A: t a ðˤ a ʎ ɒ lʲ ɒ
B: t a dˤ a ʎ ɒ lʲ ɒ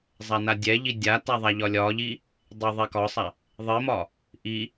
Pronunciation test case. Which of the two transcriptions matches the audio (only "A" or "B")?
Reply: A